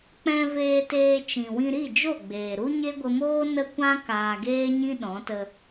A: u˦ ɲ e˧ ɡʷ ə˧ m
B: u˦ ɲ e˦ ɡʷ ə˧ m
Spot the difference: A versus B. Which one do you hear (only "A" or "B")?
B